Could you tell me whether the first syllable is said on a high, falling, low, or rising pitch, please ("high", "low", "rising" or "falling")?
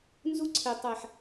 high